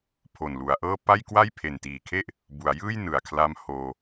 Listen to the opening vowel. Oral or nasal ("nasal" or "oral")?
oral